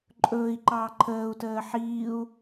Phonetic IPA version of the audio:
ǃʼ ɵː i̯ ǃ ɑː ǃʰ əː u̯ t əː ħ iː u̯

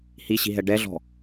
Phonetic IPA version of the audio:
h i ɕ i̤ ɦ ɛ ɖ ɛ ɮ ɔ̤

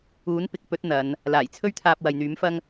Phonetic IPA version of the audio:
uː˨˥ n p ɪ˨ k̚ p ɵ˨˥ t̚ n̪ ɐ˨˧ n | l aː˨˩ j t͡sʰ ɵ˥ ɥ t̪ʰ aː˧ p̚ w ɐ˨ j n̪ yː˨˥ m f ɐ˥ ŋ

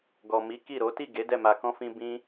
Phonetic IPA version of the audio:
ɡ ɔ˨ m i˨˦ k i˦˨ ɾ o˨˦ t i˦˨ ɡ e˨˦ d ɛ˦˨ m a˧ k ɔ̃˦ f ĩ˦ b ĩ˦

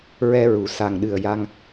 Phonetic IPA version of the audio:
ɹ ɛ˧ ɹ u˨˩˨ s a˨˩ ŋ ɗ ɨ˨˩ ə̯ j a˧ ŋ

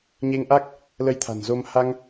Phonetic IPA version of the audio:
ɲ e˧ ŋ ʔ a˦˥ k̚ | l ə˧ j t̪ʰ a̤˨˩ n z o˧ m h a˧ ŋ

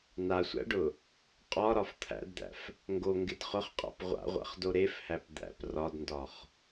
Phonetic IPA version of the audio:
n̪ a sʷ æ̰ ɖ ʊ | qʼ ɒ ɾ ɒ f t̪ʰ æ̰ d d̪ æ̰ f | ŋ ɡ o ŋ ɡ ɪ d χ ʊ χ qʼ a̰ p ʁʷ a̰ ʁʷ a̰ χ d o ɾ e f h æ p d̪ æ̰ p r ɒ d n d ɒ χ

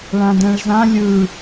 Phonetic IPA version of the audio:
ɭ ã d ɛ̃ ɭ z ã lʲ ɯ

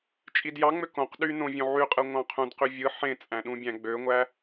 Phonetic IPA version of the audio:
t͡ʃʼ i d j ɑ ŋ͡m ø k õ q ɗ y n õ vʲ õ ʕ y qʼ ɯ ŋʷ ɑ̃ qʰ ũ d q y vʲ ɯ ħ ẽ t͡sʼ æ̃ ɗ ũ bʲ æ̃ ɡ͡b ø ŋʷ æ

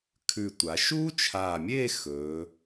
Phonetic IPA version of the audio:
kʰ ʉ˧˩ tʷ a˩˧ ʃ uː˥ t͡ʃʰ aː˧˩ mʲ eː˥˧ x ɵː˩˧

